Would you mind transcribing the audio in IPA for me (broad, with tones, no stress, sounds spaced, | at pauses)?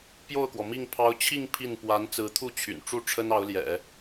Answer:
p j o˥˩ ʊ̯ k w ɔ˩ m i˥˩ ŋ pʰ ɑ˧˥ ʊ̯ t͡ɕʰ i˥˧ ŋ pʰ i˥˩ n p w a˧˥ n t͡s ɹ̩˧˥ t̪ʰ u˥˩ t͡ɕʰ y̰˨˩ n ʈ͡ʂ u˥˩ ʈ͡ʂʰ ə˥ n ɑ˧˥ ʊ̯ l j ɛ̰˨˩˦